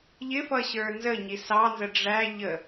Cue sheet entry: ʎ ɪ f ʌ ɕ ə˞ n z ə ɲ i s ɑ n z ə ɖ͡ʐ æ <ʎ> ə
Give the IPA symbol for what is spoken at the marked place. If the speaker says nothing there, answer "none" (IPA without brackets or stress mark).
ʎ